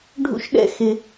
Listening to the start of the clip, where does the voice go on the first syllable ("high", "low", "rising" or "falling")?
high